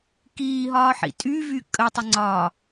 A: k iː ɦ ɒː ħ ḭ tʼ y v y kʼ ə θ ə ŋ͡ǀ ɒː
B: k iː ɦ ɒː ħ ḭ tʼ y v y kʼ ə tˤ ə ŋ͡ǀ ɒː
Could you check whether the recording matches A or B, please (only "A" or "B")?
B